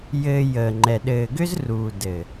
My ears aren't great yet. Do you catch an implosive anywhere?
yes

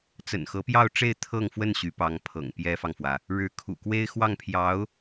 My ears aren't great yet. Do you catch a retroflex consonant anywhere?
yes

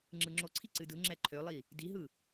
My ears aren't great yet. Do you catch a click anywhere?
yes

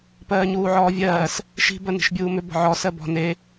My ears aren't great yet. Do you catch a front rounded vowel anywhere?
yes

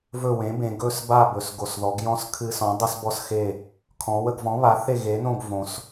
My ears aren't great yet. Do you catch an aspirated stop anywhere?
yes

